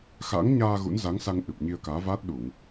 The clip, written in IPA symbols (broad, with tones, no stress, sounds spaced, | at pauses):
x a̰˧˥ ŋ ɲ aː˧ ɣ ṵ˧˥ n z a˨˦ ŋ s a˧ ŋ ʔ ɨ˨˩ p̚ ɲ i˧ ə̯ k aː˨˦ v aː˦˥ t̚ ɗ u˧˩˨ ŋ